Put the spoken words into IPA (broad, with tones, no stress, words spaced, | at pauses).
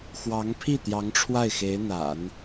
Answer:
xwɑ˧˥ŋ pʰi˥˩ t̪jɑ˧˥ŋʈ͡ʂʰwa˥˩ɪ̯xe˧˥ɪ̯n̪a̰˨˩˦n